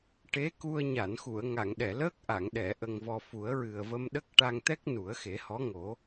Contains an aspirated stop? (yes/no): no